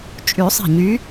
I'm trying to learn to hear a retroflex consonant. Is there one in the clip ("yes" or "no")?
no